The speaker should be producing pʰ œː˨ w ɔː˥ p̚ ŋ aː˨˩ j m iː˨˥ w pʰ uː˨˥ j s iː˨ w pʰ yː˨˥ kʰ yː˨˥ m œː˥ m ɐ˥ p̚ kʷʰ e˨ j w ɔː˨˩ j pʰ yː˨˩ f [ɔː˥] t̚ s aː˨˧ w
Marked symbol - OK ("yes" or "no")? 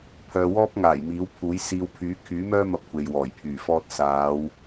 yes